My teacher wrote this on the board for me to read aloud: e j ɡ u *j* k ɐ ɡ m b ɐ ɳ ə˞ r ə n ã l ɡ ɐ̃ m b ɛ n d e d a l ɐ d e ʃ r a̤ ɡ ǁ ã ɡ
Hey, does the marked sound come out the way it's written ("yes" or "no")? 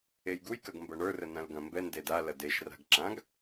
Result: yes